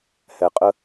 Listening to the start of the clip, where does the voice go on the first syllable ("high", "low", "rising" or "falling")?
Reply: low